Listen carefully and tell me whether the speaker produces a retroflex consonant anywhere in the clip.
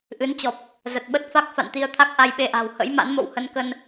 no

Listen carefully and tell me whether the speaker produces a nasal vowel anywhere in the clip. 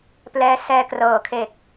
no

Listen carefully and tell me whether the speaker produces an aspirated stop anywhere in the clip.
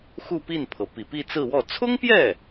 yes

